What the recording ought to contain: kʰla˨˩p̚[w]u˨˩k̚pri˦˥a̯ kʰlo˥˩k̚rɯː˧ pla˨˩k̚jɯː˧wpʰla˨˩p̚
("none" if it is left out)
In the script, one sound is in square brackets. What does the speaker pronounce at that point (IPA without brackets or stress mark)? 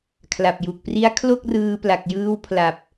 j